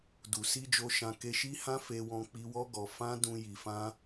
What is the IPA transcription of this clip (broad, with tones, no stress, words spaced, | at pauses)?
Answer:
du˨ si˧d͡ʒo˧ ʃã˧ke˧ʃi˦hã˦ fe˧wɔ̃˧ k͡pi˦ wɔ˦ɡɔ˧ fã˦ dũ˧ ji˧fã˦